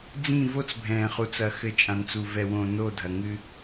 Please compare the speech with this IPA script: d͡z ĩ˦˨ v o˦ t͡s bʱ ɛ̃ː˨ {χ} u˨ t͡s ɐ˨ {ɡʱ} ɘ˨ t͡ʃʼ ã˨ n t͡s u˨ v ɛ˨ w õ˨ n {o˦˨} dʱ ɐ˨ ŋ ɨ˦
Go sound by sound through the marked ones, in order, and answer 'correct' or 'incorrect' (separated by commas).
correct, incorrect, correct